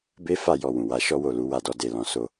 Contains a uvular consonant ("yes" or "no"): no